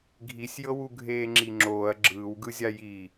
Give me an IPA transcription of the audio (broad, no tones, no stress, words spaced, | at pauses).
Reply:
ɡʱisʲjɤwu ɡʱeːŋ͡ǁiŋ͡ǁoːɐ̯ ɡ͡ǁɯːwɡɯzʲa ji